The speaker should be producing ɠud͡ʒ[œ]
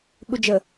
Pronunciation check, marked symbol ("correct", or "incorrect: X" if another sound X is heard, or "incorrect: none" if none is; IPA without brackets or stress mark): incorrect: ə